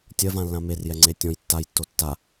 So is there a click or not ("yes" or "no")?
yes